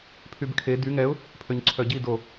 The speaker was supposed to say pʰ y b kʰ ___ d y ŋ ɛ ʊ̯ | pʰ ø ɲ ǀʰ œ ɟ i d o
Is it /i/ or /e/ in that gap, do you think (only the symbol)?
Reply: e